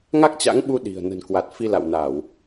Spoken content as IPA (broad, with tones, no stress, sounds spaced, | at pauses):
ŋ a˦˥ k̚ t͡ɕ a̰˧˥ ŋ ɓ u˧ ɗ i̤˨˩ ə̯ n ə̤˨˩ n k w a˨˩ t̚ f i˧ l a̰˧˨ w n a˧˩˨ w